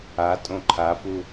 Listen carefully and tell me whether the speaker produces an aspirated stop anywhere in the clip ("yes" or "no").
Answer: yes